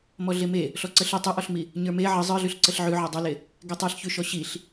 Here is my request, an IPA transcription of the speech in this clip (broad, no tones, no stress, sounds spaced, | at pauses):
m ɔ ɮ e m e | ɬ ɔ ǀ ə ɬ ə tˤ ʉ ʔ ɔ ɬ m i | ɲ ə˞ m e ʕ ə zˤ ə˞ ɮ ʉ ɬ ǀ ə ɬ ʕ ʉ ʕ ɔ dˤ ʉ l e | ɡ e tˤ ə˞ ɬ ç ʉ ʃ ɔ ɕ i ɬ